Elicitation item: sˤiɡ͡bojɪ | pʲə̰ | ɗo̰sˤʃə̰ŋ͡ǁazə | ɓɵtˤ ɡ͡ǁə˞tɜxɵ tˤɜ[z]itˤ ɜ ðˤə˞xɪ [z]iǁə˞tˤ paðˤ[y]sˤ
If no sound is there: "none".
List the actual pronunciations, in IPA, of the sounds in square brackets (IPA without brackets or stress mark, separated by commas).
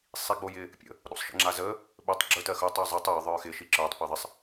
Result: zˤ, ʃ, ɪ